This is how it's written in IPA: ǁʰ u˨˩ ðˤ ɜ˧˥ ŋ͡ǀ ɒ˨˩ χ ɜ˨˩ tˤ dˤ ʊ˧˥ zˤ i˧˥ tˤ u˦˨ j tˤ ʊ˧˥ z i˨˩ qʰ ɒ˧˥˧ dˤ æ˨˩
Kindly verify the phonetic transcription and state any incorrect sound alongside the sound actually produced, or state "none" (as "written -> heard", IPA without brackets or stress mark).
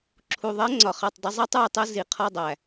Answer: none